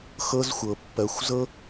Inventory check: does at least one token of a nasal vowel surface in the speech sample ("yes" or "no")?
no